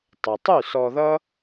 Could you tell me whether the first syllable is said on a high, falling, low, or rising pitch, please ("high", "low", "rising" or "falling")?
low